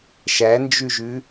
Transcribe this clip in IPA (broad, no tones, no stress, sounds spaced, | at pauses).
ʃ æ n d͡ʒ ʉ ʒ ʉ